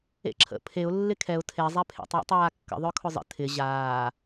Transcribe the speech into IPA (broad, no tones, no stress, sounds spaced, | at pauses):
ḛ ǁʰ ə̰ pʰ e ʊ̯ lː ɪ kʰ ɛ ʊ̯ tʰ e zˤ ɛ pʰ ḛ tˤ w ə̰ tˤ aː kː ə̰ ðˤ œ kʰ ʊ zˤ ə̰ tʰ ɪ ʑ aː